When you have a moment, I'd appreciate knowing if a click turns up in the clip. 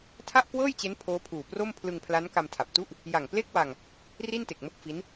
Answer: no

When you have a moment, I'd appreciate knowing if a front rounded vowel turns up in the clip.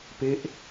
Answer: no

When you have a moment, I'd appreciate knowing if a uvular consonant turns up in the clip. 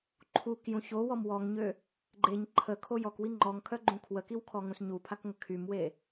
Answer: no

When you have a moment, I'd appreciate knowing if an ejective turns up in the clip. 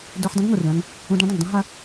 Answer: no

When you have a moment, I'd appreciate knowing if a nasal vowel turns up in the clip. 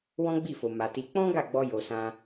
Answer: yes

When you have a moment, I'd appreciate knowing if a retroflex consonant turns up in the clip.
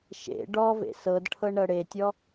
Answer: yes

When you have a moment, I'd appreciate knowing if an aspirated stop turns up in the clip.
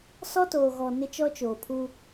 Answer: yes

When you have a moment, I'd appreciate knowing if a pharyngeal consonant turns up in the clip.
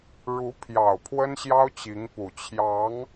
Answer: no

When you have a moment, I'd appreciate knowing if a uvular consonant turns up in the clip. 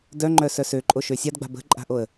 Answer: no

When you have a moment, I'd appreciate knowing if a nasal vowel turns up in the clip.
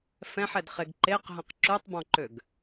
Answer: yes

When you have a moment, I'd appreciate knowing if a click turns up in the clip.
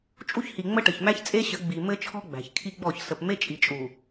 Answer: no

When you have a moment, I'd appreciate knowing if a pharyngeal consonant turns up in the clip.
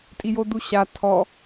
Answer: no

